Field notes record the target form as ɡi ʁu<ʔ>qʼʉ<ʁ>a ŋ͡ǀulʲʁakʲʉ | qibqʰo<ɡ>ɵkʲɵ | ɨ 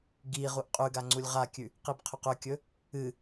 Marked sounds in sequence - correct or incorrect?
correct, incorrect, incorrect

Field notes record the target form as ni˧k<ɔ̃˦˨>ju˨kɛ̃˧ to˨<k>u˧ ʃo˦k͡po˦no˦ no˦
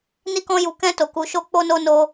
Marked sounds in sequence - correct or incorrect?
incorrect, correct

